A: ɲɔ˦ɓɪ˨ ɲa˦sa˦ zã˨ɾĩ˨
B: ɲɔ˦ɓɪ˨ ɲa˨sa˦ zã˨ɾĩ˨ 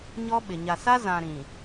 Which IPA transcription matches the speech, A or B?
B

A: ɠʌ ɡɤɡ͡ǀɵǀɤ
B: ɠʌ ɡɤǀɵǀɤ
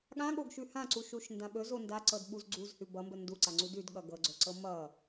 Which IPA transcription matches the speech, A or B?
A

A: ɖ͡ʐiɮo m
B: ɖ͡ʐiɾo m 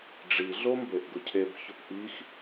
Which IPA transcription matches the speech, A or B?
A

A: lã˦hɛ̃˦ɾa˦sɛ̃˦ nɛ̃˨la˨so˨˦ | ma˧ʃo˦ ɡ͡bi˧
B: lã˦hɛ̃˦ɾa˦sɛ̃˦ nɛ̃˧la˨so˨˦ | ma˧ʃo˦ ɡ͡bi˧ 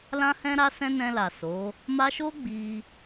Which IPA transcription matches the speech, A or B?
B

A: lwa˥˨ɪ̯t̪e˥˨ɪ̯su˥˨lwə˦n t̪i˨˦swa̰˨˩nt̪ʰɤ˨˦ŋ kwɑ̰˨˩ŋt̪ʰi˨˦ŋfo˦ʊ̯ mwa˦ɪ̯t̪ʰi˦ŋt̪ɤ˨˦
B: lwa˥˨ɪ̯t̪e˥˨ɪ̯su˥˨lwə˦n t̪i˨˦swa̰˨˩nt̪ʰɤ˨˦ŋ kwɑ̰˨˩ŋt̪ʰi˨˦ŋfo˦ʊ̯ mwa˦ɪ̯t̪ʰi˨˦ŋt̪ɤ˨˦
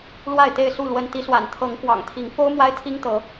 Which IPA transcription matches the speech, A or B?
A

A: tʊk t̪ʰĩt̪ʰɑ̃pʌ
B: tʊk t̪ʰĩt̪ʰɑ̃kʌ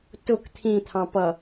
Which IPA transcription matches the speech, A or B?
A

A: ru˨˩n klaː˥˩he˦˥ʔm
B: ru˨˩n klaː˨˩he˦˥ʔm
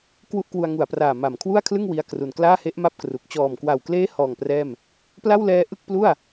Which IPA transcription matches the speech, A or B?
A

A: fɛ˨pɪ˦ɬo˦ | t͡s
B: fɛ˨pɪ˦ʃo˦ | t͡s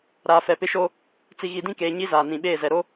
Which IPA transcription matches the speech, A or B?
B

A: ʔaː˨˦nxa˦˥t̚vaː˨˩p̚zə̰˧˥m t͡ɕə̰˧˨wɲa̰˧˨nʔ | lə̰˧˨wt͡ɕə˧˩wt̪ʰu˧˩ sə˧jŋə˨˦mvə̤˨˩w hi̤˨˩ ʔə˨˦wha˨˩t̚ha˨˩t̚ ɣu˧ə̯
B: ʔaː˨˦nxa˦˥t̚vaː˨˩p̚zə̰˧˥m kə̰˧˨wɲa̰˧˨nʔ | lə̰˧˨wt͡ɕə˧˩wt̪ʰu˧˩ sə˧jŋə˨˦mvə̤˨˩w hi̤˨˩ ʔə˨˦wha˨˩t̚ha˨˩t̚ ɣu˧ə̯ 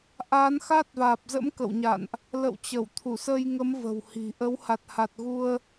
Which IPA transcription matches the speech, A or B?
B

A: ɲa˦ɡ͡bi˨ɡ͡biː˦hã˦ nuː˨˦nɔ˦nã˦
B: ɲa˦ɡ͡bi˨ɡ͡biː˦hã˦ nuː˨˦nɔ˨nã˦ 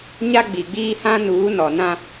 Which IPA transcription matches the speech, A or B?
B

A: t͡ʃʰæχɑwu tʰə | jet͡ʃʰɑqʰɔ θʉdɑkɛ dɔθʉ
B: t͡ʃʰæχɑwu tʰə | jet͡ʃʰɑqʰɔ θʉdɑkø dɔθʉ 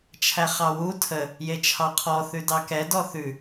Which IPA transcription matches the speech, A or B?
A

